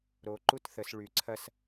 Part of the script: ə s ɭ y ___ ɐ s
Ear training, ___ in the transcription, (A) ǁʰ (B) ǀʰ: B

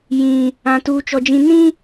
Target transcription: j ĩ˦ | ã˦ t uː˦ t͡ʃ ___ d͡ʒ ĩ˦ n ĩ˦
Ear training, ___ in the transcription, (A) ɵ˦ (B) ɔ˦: B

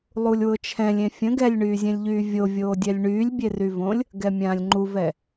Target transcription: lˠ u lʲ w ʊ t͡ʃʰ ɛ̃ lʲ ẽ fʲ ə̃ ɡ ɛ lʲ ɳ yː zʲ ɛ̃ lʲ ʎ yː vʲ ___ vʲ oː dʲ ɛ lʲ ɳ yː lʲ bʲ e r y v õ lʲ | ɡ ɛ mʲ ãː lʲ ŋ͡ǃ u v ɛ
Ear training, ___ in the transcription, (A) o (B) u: A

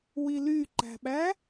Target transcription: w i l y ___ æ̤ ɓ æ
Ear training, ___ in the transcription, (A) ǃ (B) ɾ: A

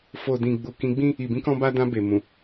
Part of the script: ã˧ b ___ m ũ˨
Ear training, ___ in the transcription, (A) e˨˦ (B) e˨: B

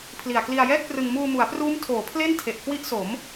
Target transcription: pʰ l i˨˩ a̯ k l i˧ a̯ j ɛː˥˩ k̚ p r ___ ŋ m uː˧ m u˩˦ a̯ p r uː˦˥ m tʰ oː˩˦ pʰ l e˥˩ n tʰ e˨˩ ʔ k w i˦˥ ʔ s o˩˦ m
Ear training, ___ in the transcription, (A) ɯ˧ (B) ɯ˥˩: A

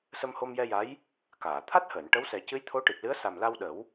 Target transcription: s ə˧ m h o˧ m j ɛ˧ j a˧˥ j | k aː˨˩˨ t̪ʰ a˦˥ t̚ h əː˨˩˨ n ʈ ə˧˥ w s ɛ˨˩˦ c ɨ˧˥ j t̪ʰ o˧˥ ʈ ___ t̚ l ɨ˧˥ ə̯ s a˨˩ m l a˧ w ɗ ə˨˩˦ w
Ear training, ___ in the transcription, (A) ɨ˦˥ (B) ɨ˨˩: B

